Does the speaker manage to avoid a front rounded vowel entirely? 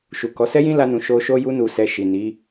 yes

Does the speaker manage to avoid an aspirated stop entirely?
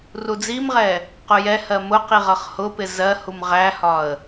yes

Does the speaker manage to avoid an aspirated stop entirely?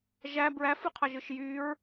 no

